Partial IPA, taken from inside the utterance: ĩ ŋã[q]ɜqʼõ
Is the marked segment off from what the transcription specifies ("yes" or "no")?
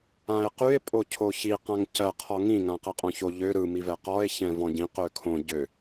no